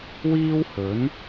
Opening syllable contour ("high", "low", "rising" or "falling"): high